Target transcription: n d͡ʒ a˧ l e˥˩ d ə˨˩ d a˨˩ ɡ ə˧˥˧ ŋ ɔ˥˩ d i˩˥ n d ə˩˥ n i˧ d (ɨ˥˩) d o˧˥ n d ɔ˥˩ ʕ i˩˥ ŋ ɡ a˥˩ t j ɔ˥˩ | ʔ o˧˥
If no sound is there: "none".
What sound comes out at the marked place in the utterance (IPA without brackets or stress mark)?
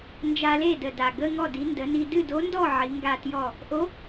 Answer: ɨ˥˩